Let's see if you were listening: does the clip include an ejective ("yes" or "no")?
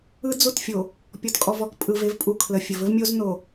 yes